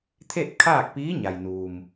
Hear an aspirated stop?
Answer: yes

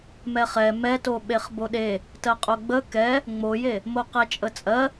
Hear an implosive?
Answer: yes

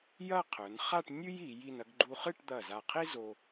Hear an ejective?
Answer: no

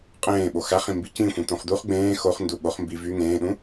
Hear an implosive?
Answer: yes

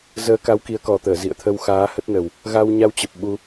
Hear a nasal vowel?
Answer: no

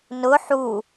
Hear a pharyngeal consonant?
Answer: yes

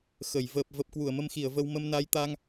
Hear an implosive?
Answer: no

